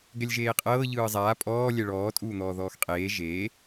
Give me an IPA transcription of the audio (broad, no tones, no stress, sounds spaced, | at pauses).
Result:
ɡ ɛ lʲ ʒ eː qʼ ɤː ʎ ɯː zˤ aː pʼ ɔː lʲ ɛ ɭ ɔː tʼ uː n̪ ɔː ð ɔː x qʼ eː ʒ eː